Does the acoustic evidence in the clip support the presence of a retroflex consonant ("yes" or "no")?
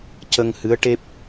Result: yes